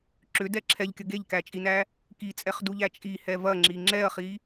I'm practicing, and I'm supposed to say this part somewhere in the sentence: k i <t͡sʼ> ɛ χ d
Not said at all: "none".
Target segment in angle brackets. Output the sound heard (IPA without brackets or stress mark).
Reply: t͡sʼ